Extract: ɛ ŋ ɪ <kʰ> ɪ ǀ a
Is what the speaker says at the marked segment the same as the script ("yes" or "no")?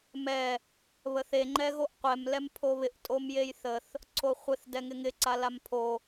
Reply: no